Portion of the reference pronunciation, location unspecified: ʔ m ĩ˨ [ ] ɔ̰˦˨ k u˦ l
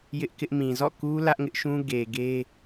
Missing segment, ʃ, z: z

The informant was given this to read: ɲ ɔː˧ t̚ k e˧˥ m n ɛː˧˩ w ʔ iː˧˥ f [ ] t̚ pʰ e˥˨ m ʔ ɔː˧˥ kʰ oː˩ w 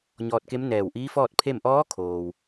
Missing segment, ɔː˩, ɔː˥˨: ɔː˥˨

